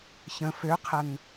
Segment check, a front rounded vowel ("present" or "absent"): present